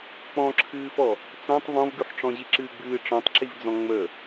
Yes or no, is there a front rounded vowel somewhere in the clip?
no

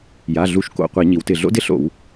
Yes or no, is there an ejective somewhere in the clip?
no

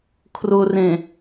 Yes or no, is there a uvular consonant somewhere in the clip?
no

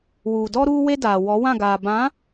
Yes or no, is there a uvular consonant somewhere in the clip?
no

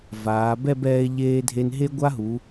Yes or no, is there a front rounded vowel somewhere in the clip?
no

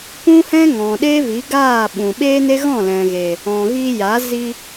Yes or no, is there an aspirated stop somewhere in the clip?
no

